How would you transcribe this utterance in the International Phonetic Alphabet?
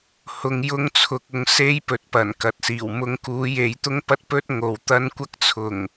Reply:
h ʊ˧ ŋ j ʊ˥ ŋ t͡sʰ ʊ˧ k̚ ʊ˧ ŋ s e˥ j p ɵ˨ t̚ p ɐ˨˩ n k ɐ˨ t̚ s iː˨˩ w m ʊ˧ ŋ k uː˨˥ j e˨˥ j t̪ ʊ˥ ŋ p ɐ˥ t̚ p ɵ˥ t̚ ŋ o˨ w t̪ ɐ˥ n kʷ ɐ˥ k̚ t͡sʰ ʊ˨˩ ŋ

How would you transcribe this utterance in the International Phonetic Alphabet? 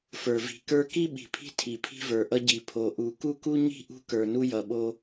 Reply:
f ə˞˨ v i̤˨ k ə˞˦ k i˦ ɓ i̤˨ pʰ i̤˦ tʰ i˨ pʰ i̤˦ v ə˞˨ ʔ ʌ˦ ɟ i˨ pʰ o˨ ʔ u˨ k u˦ k u˦ ɲ i̤˦ ʔ ṳ˦ k ə˞˨ n u˦ j ʌ˨ ɓ o˦

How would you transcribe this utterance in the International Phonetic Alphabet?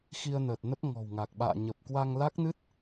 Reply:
x i˧ ə̯ n əː˨˩ t̚ n ə˦˥ p̚ ŋ ɔ̤˨˩ w ŋ a˨˩ k̚ ɓ a̰ː˧˨ ɲ ə˨˩ p̚ k w a˧ ŋ l a˦˥ k̚ n ɨ˦˥ t̚

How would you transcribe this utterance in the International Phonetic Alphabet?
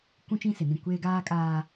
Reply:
kʷ ũ˦ t͡ʃ ĩ˦ s ɪ˨ n ĩ˦˨ kʷ eː˦ ɡ aː˦ kʼ aː˦

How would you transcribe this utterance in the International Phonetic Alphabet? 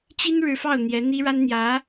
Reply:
t͡ɕ i˥ n ɻ ɻ̩˧˥ f ɑ˥˩ ʊ̯ n̪ j ɛ˧˥ n̪ i˥ ɻ a˥ n n̪ j ä˧˥

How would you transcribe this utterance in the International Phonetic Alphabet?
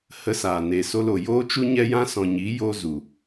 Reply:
h ə˧ s aː˨ n e˨ s o˧ l o˨ j oː˦ t͡ʃ u˦ ɲ ɛ˦ j ã˦ s ɔ̃˨ ɲ i˨˦ j o˧ z u˨

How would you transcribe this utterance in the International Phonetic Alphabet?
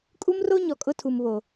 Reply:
kʼ u˦ m r o˦ ɲ ɔ˨ kʼ ʊ˦ tʰ u˨ m β o˨

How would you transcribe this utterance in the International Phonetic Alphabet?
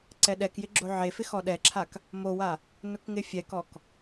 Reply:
ǀ ɛ ɗ ɛ k j ɪ ɡ͡ǁ o ʕ e f ɪ x ɔ ɗ ɛ ǁʰ a k | m o w a | n ʊ k ŋ ɪ fʲ ɛ k ɔ k

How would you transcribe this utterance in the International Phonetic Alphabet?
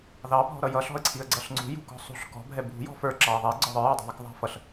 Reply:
ð ɑ bʱ ɔ̤ ɾ ʌ j ʌ ɬ ɔ̤ ə̯ ǀʰ i ə̯ ɡ͡ǀ ʌ ɬ ŋ͡ǀ ṳ j ṳ k ɔ̤ sˤ ṳ ɬ k ɔ̤ bʱ ɛ bʱ ṳ j ɔ̤ f ə˞ ǁ ɑ ə̯ ðˤ ɛ ɡ͡ǀ ɔ ðˤ ə˞ j ɑ dˤ ɑ̤ ðˤ ɑ k ðˤ ɑ̤ f ʌ ɬ

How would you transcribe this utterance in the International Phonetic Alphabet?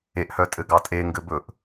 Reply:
e ʔ h œ tʼ ɘ ɡ ɑ tʼ e ŋ ɡ ɘ b ɵ ʔ

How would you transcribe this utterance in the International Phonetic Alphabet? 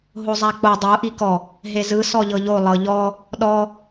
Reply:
ɦ o zˤ a k͡p o dˤ o ʔ i k ɔ | ɦ e z ɯ s ɔ ʎ ɤ ʎ o lˠ ɤ ʎ ɔ | ɗ ɔ

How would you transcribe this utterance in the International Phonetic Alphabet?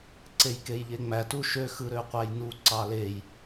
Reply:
ǀ e j k e j ʎ e ŋ͡m æ t u ʃ ø x ɯ ɾ ø qʷ æ j n u ǀ ɑ l e j

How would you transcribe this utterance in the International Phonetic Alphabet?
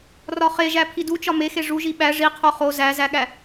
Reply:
r ɒ χ e ʒ æ pʰ i d u t͡ʃ ɒ m e x e ʐ u ʒ i ɓ æ ʐ i qʰ o χ o z æ z æ ɠ æ

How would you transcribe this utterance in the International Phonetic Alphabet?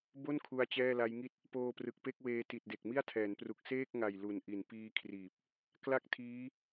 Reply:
b o˥˩ n kʰ u˦˥ a̯ t͡ɕ ɛː˥˩ l a˦˥ j ŋ i˥˩ t̚ | p oː˧ p r ɯ˨˩ k̚ p e˥˩ k̚ w eː˧ t i˨˩ t̚ d e˨˩ k̚ m i˥˩ a̯ tʰ ɛː˩˦ n p r u˨˩ k̚ s eː˥˩ k̚ ŋ a˨˩ j l u˨˩ n ʔ i˨˩ n p iː˦˥ kʰ r iː˨˩ p̚ | k l a˥˩ k̚ tʰ iː˦˥

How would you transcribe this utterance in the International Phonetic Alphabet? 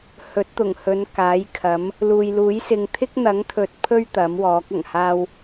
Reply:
h ɵ˨˥ t̚ t̪ ʊ˨˩ ŋ h ɵ˨˧ n k aː˨˥ j kʰ ɐ˨˥ m | l uː˨ j l uː˨˥ j s ɪ˨ ŋ t̪ʰ ɪ˥ k̚ n̪ ɐ˨˥ ŋ t̪ʰ ɵ˨ t̚ pʰ ɵ˥ ɥ t̪ ɐ˨˥ m w ɔː˨˥ k̚ ɐ˨˩ ŋ h aː˥ w

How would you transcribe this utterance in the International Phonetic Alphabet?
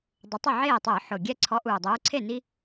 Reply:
dˤ ʊ˨˦ tˤ ɪ˥˩ ʕ eː˥˩ tˤ ʊː˧˩˧ ħ ʊ˨˩ ɡʲ ɛ˦ ǀʰ ɔ˨˦ ʔ uː˨˩ dˤ uː˨˦ ǀʰ e˥˩ n i˦

